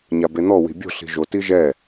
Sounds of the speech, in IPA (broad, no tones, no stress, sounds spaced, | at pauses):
ɲ a b e n̪ ɔ w i̤ bʲ o̤ ɬ i̤ ʒ o t i ʒ ɛ